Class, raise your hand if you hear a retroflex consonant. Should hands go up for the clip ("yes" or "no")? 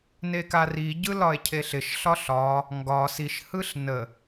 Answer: no